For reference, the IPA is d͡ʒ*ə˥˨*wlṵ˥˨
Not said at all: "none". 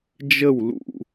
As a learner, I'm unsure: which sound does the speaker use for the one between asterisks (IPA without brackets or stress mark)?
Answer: ə˥˨